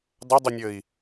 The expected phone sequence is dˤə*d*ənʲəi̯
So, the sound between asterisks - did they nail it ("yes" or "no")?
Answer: no